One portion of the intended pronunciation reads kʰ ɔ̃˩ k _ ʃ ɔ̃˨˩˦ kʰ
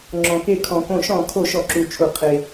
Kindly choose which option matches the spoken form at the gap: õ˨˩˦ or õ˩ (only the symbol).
õ˨˩˦